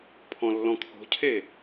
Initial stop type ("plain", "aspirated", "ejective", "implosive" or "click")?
aspirated